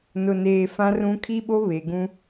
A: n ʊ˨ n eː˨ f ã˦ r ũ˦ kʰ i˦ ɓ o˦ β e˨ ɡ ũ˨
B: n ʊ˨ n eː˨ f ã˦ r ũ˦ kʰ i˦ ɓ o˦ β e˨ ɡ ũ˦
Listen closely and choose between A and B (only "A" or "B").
B